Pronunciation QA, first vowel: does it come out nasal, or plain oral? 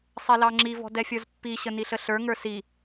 oral